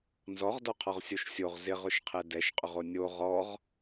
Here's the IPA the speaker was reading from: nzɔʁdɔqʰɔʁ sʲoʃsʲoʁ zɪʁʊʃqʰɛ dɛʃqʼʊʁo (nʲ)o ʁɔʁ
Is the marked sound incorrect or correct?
correct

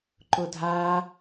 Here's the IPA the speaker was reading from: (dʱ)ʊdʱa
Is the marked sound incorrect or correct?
incorrect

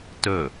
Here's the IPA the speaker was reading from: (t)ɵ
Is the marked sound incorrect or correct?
correct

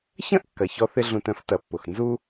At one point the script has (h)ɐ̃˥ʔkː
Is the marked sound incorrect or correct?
incorrect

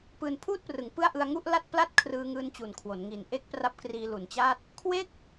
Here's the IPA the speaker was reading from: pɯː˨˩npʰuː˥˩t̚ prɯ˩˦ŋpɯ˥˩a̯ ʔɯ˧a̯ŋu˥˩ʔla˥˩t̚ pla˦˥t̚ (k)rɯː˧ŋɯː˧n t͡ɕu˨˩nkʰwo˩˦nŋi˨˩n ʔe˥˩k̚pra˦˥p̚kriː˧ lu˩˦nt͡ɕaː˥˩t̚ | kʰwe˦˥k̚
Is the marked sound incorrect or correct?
incorrect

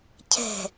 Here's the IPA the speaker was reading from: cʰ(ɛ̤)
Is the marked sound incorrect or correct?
correct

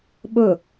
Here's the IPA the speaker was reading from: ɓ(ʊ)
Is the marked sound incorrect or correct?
correct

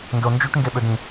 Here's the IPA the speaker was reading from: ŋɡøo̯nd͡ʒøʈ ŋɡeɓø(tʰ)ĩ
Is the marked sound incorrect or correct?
incorrect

